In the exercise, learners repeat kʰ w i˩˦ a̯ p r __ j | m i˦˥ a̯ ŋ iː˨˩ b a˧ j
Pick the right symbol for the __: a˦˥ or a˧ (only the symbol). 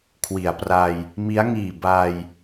a˧